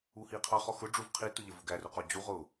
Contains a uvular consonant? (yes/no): yes